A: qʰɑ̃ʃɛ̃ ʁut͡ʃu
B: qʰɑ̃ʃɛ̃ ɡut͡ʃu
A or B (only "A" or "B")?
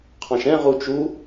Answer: A